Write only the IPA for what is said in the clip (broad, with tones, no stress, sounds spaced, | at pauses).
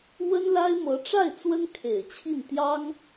w ə˥ n l a˥ ɪ̯ m ɤ˧˥ ʈ͡ʂ a˥˩ ɪ̯ t͡s w ə˥ n kʰ e˨˩ ɪ̯ t͡ɕʰ i˥˩ n t̪ j ɑ˥ ŋ